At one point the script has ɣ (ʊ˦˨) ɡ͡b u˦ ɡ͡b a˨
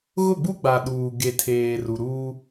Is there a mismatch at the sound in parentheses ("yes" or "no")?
no